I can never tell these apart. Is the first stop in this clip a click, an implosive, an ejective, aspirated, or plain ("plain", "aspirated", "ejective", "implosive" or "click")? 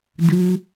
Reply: plain